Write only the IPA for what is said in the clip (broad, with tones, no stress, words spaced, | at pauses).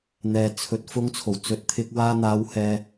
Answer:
n̪ɛː˨ t͡sʰɵ˨˥t̚ fʊ˨˧ŋt͡sʰo˨˩w t͡sɵ˨˥t̚t̪ʰɪ˧k̚ waː˧ n̪aː˨˧whɛː˨